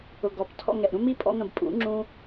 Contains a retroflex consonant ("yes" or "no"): no